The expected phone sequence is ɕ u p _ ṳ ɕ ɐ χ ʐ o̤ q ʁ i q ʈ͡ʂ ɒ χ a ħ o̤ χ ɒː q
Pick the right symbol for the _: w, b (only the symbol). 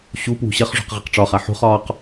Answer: w